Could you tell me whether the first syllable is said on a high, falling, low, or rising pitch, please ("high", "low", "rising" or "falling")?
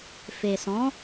low